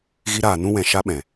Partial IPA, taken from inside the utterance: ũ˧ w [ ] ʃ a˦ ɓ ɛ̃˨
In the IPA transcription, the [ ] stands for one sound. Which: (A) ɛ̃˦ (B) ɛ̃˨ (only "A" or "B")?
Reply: B